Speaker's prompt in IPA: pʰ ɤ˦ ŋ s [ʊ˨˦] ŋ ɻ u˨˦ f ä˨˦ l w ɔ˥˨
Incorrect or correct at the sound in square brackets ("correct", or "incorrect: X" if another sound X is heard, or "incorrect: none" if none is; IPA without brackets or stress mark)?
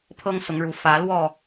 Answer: correct